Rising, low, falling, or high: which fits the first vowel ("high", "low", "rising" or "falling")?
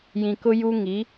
low